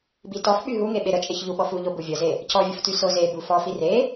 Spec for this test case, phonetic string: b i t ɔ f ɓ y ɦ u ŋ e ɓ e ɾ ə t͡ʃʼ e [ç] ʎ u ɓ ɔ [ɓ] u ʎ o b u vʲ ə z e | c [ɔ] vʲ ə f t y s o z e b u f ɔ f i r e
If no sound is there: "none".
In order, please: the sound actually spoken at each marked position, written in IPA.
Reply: ç, f, ɔ

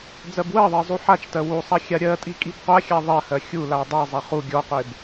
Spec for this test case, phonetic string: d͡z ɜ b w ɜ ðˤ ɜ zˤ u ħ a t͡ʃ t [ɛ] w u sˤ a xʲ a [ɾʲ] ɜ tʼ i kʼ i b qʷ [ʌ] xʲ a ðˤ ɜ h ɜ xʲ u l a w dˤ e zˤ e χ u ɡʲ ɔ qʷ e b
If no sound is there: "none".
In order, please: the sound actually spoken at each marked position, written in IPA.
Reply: ɜ, ɾʲ, a

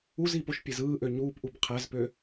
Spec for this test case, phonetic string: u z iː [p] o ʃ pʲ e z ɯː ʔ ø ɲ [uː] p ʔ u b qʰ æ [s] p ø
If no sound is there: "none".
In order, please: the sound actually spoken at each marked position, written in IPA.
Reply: p, uː, z

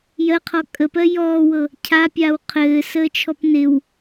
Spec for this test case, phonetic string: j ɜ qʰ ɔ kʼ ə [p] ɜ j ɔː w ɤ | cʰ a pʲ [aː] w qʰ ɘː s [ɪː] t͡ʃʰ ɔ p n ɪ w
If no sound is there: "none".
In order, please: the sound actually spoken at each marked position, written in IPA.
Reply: p, aː, əː

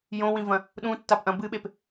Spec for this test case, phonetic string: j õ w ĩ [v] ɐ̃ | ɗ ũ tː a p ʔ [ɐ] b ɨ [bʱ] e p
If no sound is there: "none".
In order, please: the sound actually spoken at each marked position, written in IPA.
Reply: v, ɐ̃, ɓ

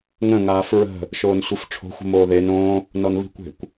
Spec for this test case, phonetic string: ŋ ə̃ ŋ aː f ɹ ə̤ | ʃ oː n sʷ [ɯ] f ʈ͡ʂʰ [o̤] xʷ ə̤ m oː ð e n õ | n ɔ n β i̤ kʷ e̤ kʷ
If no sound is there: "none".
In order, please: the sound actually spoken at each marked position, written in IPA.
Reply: ɯ, o̤

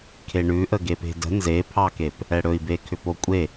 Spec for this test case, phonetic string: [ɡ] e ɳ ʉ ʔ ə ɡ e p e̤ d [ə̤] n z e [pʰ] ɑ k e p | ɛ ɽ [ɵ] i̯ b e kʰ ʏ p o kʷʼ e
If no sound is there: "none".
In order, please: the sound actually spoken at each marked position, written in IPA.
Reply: kʰ, ə̤, pʰ, ɵ

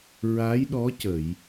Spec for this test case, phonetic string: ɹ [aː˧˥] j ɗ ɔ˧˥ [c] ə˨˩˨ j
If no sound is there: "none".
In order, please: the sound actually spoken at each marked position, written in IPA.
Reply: aː˧˥, c

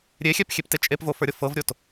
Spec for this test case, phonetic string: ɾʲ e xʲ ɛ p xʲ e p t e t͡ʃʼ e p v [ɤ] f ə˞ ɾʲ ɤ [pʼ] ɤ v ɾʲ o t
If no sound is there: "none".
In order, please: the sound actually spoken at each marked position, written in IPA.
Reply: o, f

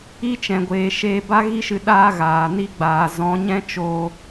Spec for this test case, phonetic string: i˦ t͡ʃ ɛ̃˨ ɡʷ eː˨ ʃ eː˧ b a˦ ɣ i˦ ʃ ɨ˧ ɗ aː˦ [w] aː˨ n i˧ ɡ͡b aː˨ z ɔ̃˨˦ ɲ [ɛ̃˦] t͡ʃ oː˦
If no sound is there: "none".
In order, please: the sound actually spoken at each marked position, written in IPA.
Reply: ɣ, ɛ̃˦

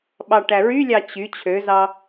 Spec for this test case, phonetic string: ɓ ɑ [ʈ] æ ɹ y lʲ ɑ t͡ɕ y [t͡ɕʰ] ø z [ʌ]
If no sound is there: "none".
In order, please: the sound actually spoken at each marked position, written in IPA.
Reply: ʈ, t͡ɕʰ, ɑ

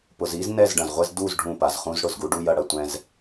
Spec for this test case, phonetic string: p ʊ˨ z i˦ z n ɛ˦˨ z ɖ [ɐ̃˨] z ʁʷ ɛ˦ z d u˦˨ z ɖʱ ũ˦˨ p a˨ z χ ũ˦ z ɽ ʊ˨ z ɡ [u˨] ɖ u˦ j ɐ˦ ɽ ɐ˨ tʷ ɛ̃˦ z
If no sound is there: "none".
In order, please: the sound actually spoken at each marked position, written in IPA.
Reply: ɐ̃˨, u˦

